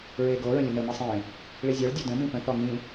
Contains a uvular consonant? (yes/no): no